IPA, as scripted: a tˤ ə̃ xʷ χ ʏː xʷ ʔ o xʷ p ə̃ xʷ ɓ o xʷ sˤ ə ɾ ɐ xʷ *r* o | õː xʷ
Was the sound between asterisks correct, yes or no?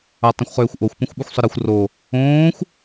yes